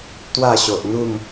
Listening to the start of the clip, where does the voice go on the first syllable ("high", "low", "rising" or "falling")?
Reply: falling